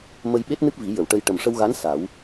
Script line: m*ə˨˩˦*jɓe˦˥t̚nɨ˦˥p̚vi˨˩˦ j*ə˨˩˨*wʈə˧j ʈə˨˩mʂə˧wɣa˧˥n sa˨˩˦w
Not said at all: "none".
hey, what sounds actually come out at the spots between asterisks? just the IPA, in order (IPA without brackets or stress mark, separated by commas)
ə˧, ə˨˩˨